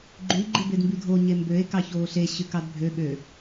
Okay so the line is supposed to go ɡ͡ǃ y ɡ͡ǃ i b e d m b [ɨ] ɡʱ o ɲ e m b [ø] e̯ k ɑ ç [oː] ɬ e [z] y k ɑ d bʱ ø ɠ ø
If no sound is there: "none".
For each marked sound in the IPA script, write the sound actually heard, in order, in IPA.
y, ø, oː, ɕ

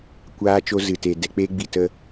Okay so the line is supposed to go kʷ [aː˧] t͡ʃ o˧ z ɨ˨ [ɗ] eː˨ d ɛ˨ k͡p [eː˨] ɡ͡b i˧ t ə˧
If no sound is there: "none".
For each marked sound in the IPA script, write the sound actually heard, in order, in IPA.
aː˧, t, eː˦

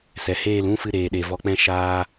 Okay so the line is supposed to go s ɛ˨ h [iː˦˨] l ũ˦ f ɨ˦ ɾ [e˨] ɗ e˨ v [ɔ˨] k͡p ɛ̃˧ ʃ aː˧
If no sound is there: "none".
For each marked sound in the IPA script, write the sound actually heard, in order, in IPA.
eː˦˨, eː˨, ɔ˨

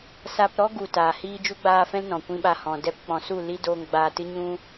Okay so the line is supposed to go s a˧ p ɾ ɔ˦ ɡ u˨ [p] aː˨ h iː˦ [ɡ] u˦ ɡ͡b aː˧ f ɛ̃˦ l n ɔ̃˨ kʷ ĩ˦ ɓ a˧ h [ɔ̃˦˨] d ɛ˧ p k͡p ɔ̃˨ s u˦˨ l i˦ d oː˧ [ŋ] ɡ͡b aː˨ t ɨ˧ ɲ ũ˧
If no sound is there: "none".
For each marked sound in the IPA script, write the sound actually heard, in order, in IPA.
t, d͡ʒ, ɔ̃˨, ŋ

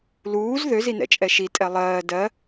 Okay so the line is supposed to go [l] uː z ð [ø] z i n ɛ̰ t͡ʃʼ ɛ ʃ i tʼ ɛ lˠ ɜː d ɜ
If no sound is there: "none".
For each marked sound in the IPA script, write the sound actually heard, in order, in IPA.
l, ø

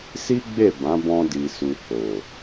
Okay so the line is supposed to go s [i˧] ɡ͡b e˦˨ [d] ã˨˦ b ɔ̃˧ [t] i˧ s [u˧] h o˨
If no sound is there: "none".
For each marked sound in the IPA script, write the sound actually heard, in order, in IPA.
i˦, b, d, u˧

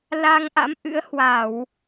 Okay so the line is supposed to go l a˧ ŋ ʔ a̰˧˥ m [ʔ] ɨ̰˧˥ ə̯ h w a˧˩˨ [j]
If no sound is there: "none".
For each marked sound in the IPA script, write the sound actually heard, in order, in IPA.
ʔ, w

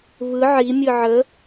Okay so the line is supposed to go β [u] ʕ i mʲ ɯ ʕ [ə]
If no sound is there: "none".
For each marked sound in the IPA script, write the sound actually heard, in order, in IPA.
ɯ, ə

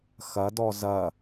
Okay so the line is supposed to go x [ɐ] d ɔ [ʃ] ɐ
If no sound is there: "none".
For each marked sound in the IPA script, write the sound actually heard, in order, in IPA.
ɐ, z

